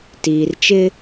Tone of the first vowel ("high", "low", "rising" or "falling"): low